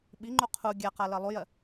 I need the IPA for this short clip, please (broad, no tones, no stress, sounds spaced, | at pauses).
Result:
ɓ i ŋ͡ǃ u qʰ u ɡʲ a q a l ɜ lˠ u j ɜ